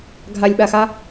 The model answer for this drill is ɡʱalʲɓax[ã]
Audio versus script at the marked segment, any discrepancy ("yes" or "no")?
yes